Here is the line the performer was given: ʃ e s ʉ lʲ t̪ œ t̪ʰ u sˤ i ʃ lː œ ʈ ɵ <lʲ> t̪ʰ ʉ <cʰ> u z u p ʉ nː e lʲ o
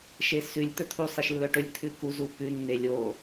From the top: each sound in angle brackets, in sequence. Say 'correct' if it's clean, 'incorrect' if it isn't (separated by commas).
correct, incorrect